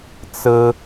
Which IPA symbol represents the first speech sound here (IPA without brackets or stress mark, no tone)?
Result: t͡s